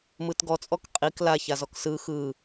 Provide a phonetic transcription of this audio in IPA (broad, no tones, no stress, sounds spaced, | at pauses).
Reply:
m ɯ t ɡ ɔ t͡sʼ ɔ k qʼ i k l a ç a z ɔ k s ɯ x ɯ